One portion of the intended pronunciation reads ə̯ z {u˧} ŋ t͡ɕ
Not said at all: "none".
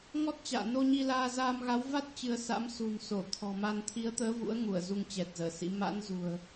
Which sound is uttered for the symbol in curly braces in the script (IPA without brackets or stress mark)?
u˧